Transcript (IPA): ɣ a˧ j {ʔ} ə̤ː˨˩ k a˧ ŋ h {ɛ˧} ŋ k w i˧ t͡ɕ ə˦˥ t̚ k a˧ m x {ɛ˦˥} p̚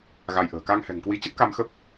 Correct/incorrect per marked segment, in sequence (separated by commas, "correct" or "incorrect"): correct, incorrect, incorrect